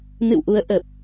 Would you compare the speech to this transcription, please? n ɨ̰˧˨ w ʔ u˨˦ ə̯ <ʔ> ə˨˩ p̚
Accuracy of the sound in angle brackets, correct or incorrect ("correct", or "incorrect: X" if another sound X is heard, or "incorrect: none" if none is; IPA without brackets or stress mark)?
correct